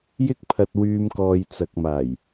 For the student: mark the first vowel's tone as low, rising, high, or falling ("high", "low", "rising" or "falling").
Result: high